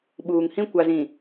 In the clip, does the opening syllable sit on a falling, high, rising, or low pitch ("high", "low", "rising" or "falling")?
low